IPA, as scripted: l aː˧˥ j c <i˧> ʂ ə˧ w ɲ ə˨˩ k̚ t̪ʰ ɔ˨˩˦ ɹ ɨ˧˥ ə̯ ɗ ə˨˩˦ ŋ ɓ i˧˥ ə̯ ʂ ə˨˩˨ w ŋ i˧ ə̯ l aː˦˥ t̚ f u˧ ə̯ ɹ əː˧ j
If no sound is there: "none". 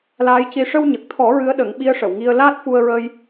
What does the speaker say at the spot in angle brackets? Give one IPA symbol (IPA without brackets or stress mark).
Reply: i˧